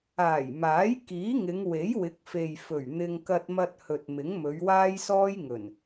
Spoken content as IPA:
aː˨˩ j m aː˨˥ j k iː˨˥ ŋ ɪ˨˧ ŋ w e˨˥ j w ɪ˨˥ k̚ f e˨ j f ɵ˨˩ ɥ n̪ ɪ˧ ŋ k ɐ˧ t̚ m ɐ˧ t̚ h ɵ˨ t̚ m ɪ˨˥ ŋ m ɵ˨˧ ɥ w aː˥ j s ɔː˥ j ŋ ɵ˨˩ n

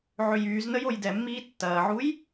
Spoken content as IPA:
ʕ ʏ j yː z n ə j o j d ɛ mː iː tː ɐː ʕ u j

